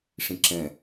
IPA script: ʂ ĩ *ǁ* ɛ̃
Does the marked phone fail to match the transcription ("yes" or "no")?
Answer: no